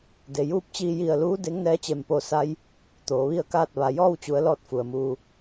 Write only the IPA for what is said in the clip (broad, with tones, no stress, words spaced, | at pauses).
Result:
de˩juː˧˥p̚t͡ɕiː˧ ji˧˩ə̯luː˧˥ de˧˥ŋnɛː˧˥t͡ɕe˧˩mpo˧ sa˧j | t̪oː˩˧ʋi˥˨ə̯kaː˥˨t̚ ʋa˩jɔː˥˨wt͡ɕu˩˧ə̯ lɔː˥˨t̚fu˩ə̯muː˧